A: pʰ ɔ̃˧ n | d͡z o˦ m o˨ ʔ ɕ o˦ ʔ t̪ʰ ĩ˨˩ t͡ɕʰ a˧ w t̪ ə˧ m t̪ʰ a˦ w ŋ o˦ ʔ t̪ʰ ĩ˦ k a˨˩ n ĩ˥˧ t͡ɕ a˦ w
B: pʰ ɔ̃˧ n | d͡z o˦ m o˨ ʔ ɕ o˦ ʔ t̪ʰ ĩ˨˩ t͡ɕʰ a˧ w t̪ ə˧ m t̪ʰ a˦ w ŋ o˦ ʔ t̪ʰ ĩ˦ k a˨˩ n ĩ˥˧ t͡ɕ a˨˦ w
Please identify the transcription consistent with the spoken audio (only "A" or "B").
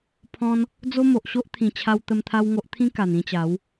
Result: B